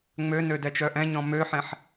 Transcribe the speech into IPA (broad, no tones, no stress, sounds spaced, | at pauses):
ŋ͡m ø n ø d ɛ t͡ʃ œ ʔ ɛ̃ ɲ ɔ̃ m ø ħ ɛ̃ ħ